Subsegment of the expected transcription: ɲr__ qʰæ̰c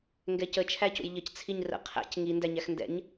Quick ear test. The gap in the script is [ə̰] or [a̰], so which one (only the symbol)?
ə̰